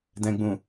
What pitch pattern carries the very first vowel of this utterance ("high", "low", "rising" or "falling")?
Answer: low